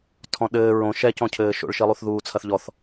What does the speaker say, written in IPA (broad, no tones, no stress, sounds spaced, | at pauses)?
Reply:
tʰ ɔ̃ ɗ ɘː ɹ õ ʃ ɛ c ɔ̃ cʰ ɘː ʃ o̰ ɭ ʃ i lˠ u θ ð uː t͡sʰ ɐ θ ʎ ɔ θ